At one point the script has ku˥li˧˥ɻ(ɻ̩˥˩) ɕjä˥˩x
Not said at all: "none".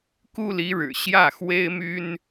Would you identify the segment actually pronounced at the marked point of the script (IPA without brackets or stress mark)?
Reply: ɻ̩˨˩